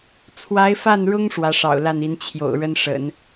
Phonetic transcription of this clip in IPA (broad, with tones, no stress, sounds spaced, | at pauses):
t͡sʰ w a˧˥ ɪ̯ f a˥˩ n ɻ ʊ˥ ŋ ʂ w ä˧˥ ʂ ɑ̰˨˩ ʊ̯ l a˥˩ n i˧˥ n t͡ɕʰ j o̰˨˩ ʊ̯ ɻ ə˥ n ʂ ə̰˨˩˦ n